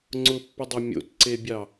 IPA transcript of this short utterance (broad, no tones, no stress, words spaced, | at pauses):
ŋ͡ǀʊpːʊdˤɐ mʲo̰tǀebʲɑ